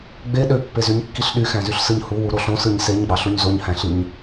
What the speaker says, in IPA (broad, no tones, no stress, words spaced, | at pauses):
ɡ͡be ɗøpːezyɲkːiɬ ɗyxæ̃zyɬsɯɲ huwuɾo ɬõsɯɲ seɲɡ͡bɑɬuɲ zoɲhæ̃ɬiɲ